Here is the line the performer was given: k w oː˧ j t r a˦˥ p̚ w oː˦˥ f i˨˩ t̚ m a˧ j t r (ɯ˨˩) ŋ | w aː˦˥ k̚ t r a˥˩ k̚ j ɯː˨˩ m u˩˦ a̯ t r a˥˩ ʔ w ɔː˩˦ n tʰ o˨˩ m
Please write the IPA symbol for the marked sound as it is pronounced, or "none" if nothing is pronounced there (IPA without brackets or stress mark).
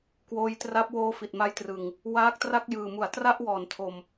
ɯ˨˩